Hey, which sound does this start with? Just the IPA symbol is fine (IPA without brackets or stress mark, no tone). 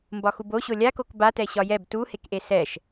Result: m